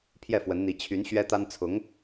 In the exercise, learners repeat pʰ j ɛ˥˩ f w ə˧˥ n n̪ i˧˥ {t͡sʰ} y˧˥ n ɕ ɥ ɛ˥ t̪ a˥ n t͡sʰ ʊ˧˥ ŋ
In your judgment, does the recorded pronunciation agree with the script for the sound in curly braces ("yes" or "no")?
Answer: no